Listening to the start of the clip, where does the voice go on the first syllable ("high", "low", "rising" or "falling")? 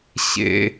high